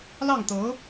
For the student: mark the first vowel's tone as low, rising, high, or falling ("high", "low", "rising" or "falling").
falling